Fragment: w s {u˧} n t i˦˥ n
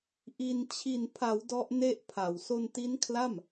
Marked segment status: incorrect: o˧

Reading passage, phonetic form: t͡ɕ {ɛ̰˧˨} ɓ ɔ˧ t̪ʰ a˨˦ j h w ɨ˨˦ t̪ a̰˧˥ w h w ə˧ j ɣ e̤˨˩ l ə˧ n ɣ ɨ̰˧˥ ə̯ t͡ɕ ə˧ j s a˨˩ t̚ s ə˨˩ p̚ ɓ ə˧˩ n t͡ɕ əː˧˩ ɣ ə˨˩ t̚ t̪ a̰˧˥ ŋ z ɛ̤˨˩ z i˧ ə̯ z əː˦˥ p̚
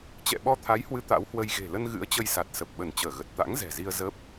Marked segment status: correct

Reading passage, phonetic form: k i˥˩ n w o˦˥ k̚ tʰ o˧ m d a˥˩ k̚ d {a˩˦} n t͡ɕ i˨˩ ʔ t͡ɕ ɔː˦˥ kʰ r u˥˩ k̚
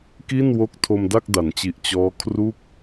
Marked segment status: correct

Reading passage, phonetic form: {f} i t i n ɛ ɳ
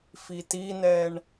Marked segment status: correct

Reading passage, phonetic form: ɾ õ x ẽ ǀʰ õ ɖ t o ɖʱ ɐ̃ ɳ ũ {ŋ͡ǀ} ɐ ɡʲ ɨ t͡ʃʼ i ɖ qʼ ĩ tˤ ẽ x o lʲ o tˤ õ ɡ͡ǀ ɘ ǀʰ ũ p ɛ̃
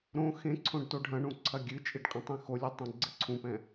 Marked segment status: incorrect: ǀʰ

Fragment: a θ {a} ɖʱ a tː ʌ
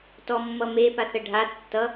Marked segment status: incorrect: ə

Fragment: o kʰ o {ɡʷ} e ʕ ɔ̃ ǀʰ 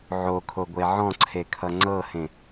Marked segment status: correct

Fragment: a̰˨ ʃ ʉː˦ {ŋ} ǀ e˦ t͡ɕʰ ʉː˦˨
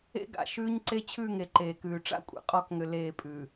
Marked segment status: incorrect: ɲ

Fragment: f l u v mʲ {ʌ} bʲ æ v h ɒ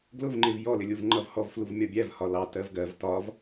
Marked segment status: incorrect: ɒ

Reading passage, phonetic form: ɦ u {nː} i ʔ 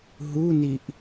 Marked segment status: incorrect: n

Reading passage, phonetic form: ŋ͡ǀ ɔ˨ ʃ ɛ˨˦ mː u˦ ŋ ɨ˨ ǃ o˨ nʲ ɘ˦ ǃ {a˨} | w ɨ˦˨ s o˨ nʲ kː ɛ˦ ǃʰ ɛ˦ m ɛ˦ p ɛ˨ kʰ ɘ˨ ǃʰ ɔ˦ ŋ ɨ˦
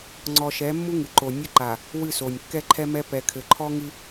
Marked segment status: correct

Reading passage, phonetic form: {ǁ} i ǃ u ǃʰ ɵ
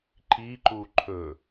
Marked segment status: incorrect: ǃ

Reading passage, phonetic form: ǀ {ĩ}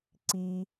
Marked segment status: incorrect: i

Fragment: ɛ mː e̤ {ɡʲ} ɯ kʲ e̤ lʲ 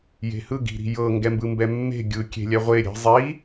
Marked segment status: correct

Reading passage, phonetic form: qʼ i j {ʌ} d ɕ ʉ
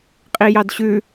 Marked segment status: incorrect: ɑ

